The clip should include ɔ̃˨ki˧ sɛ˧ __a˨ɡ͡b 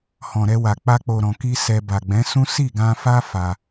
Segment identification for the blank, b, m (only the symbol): b